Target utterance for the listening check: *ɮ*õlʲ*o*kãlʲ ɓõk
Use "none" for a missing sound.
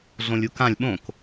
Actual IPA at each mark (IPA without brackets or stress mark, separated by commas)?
ɮ, u